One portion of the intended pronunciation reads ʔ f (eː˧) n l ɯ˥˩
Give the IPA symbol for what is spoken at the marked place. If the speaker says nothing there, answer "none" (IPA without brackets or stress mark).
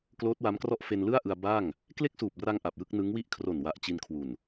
e˧